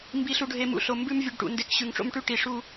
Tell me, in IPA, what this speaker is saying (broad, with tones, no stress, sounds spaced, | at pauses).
m b i˨ ɬ u˨ ɖʱ e˨ m ṵ˨ ɬ o˨ m b ʉ˦ m vʲ ʉ˨ ɖ ʈ ṵ˨ n d e˨˦ k ɕ ʉ˨ ŋ ʈ͡ʂ o̰˦ m ʈ ʉ˦ ʈ i˨ ʂ u˦